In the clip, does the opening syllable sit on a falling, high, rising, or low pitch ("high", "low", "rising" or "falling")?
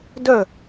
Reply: falling